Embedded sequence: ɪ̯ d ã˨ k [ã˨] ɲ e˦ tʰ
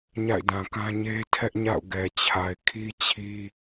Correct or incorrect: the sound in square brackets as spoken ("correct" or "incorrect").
incorrect